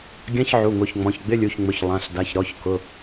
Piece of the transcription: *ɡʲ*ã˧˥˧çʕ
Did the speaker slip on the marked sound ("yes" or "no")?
no